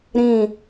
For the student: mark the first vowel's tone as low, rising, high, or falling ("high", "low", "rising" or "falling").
falling